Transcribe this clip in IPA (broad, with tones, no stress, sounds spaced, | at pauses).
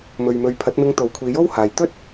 m ɵ˨ ɥ m ɵ˨˧ ɥ pʰ ɐ˨˥ t̚ m ɪ˧ ŋ t̪ o˨˥ w kʷʰ iː˨˧ j o˥ w h aː˨ j t̪ ɵ˥ t̚